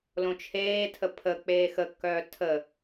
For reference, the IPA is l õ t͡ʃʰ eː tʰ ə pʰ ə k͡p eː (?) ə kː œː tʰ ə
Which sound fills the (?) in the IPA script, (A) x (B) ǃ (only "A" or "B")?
A